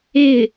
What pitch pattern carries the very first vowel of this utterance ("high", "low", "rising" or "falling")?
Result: falling